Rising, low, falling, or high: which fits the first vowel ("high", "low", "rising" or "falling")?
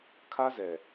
high